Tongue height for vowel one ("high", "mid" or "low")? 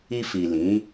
high